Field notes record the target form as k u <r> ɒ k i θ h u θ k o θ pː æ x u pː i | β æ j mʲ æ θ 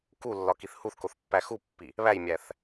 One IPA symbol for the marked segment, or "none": lː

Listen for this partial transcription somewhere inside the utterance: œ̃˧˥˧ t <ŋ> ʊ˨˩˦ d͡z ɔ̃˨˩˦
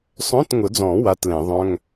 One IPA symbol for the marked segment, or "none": ŋ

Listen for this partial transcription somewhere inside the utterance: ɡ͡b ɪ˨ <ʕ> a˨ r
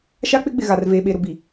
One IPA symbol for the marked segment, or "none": ɣ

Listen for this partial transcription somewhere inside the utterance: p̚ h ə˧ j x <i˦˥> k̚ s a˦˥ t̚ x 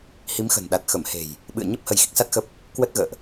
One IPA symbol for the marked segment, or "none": i˦˥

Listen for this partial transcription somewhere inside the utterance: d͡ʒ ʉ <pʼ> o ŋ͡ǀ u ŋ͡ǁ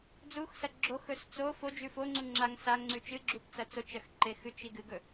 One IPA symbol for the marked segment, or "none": f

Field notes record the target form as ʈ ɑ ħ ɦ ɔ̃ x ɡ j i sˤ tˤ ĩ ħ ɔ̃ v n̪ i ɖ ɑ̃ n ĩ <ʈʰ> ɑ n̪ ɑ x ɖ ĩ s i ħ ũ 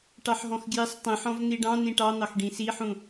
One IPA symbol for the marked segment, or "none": ʈ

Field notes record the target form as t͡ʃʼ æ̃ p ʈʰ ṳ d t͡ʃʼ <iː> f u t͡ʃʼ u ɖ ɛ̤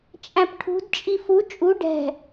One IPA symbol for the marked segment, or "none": i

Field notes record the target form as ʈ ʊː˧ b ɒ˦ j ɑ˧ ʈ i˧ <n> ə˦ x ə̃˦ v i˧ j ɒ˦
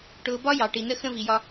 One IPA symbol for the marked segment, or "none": n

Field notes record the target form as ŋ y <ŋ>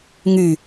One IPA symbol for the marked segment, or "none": none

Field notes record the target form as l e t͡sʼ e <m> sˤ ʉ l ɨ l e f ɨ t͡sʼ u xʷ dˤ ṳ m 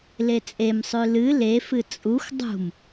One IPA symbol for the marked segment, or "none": m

